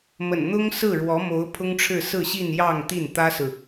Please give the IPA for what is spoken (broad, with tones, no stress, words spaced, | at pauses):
mə̰˨˩nn̪ʊ˥ŋsɹ̩˥˩ ɻwɔ˧˥mo˧˥ʊ̯ pʰʊ˥ŋʈ͡ʂʰɻ̩˥˧ sɹ̩˥˧ɕi˥˧n jɑ˥˧ŋt̪i˥˩n t̪ä˥sɹ̩˨